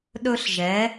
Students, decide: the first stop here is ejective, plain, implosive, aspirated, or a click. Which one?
implosive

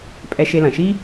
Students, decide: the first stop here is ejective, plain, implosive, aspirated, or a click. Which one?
ejective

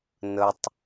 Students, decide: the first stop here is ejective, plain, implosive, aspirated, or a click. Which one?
plain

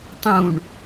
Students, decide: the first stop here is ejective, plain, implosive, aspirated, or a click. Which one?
plain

